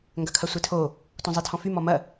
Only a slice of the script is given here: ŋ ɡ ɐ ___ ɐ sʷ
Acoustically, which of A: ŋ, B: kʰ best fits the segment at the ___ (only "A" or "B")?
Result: B